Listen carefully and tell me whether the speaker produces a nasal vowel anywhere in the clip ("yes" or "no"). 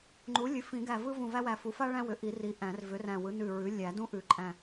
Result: yes